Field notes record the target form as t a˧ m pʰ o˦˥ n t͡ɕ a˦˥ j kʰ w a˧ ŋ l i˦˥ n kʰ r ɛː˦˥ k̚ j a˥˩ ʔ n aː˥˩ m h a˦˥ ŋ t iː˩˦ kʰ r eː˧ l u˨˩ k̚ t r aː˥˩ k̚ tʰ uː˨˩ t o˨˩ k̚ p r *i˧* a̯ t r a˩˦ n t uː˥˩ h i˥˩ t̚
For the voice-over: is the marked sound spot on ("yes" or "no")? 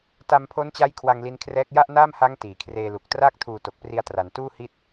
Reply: yes